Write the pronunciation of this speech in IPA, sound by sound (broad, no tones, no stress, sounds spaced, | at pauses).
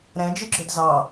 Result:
ɾ ɛ̃ d͡ʒ ɨ ɡ͡ǁ ɵ d z ɑ